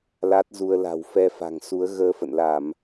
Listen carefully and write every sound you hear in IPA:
l a˦˥ t̚ z u˧ ə̯ l a̤˨˩ w f ɛ˧ f a̤˨˩ ŋ s u˨˦ ə̯ ɣ əː˧ f ə̰˧˨ n l a˧˩˨ m

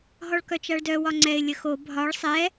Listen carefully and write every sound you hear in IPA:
ɦ ɔ ɭ k œ t͡ʃ a ɭ d œ w ɒ ŋ͡ǀ ɛ ɪ̯ lʲ ə x o bʱ ɒ ɭ sˤ ɛ

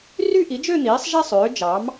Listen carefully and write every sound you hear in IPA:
r y˥˧ ʔ i˩˥ d͡ʒ ø˥˧ n̪ iː˩˥ sˤ ʒ æ˥˧ sˤ øː˩˥ d͡ʒ ɑ˩˥ m

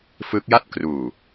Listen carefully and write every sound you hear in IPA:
f ɯ˦˥ k̚ j a˥˩ t̚ k r uː˨˩

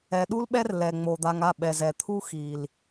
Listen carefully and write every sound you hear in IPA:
ɛ˨ ɗ u˦ l ɓ ɛ˦ r l ɛ˨ ŋ͡m o˨ d̪ a˧ ŋ a˦˨ ɓ ɛ˨ z ɛ˨ t̪ʰ u˦ x i˨ l

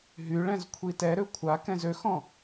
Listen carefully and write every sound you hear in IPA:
ɦ y ɭ ɛ̃ z kʷʰ i t ɛ ɾ ø kʷʰ a k ɛ̃ z ø x ɔ̃

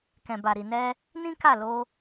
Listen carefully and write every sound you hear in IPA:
k ɛ̃˨ b a˨ ɾ i˨ n ɛ˧ | n ĩ˦ k a˦˨ l o˧

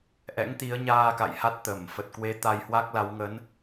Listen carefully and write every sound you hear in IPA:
ʔ ɛ̰˧˥ ŋ t̪ i˨˦ ə̯ ɲ aː˧ k a̰˧˨ j h a˦˥ t̚ t̪ əː˧˩ m f ə˨˩ t̚ k w e˨˦ t̪ a˧ j h w a˦˥ k̚ l a˨˦ w ŋ ə˨˦ n

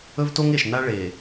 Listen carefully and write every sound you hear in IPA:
ɵ˦ v t o˦ ŋ e˨ ʃ n a˦ ɭ e˨

